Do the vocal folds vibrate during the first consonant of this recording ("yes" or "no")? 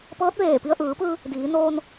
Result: no